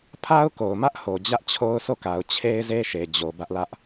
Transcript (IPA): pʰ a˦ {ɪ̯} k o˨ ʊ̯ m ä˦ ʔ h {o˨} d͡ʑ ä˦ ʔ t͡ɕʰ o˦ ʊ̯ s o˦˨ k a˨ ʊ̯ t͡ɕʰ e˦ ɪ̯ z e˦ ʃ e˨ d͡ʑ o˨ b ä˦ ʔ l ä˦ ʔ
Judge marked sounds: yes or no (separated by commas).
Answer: no, yes